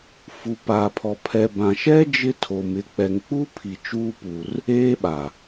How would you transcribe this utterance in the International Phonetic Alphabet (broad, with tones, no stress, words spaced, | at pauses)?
fu˨pa˨pʰɔ˨ pʰɛ˨bã˨ʃɛ˦ d͡ʒɪ˦ tʰo˨m ɪ˨˦k͡pɛ˨ŋk͡pu˦pʰi˨ t͡ʃuː˦pu˨r | eː˦ɓa˨